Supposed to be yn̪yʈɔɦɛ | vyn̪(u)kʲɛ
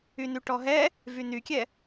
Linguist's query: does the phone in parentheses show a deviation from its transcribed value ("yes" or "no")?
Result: yes